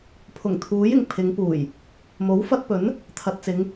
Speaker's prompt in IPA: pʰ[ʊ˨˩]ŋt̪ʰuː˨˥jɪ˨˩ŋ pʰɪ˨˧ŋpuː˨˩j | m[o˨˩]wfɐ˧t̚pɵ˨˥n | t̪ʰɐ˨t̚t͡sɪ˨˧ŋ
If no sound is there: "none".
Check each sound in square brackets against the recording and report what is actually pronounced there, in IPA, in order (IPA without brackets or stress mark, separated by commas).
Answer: ʊ˨˩, o˨˥